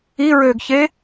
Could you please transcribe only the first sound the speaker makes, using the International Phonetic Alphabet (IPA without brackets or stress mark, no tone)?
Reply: i